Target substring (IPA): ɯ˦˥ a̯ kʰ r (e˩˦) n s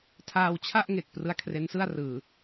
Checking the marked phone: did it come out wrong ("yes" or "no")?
yes